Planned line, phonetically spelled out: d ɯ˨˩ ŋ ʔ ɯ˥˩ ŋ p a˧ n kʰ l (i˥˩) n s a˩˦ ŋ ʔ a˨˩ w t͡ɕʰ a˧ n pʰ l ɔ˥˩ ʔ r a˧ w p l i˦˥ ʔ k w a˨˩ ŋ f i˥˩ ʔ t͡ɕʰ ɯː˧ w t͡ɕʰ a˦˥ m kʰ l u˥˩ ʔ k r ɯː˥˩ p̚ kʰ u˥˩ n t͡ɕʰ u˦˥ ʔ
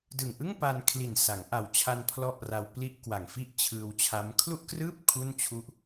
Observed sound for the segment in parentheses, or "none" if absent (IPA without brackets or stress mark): i˨˩